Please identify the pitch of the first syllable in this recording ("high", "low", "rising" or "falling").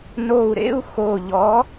low